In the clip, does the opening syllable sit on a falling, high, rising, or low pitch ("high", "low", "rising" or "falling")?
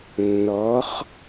rising